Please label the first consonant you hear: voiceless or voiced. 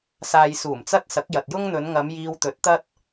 voiceless